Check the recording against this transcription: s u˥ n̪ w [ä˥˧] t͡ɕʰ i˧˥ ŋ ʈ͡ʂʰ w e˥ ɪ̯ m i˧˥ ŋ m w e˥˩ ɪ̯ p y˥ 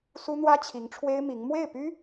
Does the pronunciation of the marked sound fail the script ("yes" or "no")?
yes